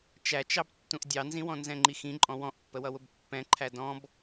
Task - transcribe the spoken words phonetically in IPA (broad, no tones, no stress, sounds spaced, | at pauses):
t͡ʃ æ t͡ʃ ɑ b tː ũ ʔ dʲ ɑ n z ĩ w ɔ̃ n z ɛ̃ ŋ͡ǃ i x ĩ ǃʼ ɔ̃ w ɔ̃ ʔ pː ə w ʌ w ʊ b pː ɛ̃ ǃʰ æ d ɔ̃ b